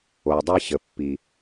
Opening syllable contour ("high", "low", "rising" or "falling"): low